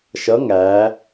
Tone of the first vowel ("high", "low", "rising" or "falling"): rising